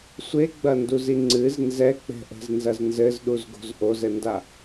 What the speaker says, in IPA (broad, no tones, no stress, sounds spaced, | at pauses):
sʷ e ɡ͡b ɐ n d u z i ŋ͡ǀ ɨ z n z ɛ k͡p ɛ̤ ʔ ɛ̤ z n z ɐ z n z ɘ z ɗ u z ɡ o̤ z ʔ o z ɘ n d a